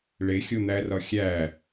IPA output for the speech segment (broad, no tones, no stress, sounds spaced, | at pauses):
ɭ e xʲ o n̪ æ r ɒ xʲ æ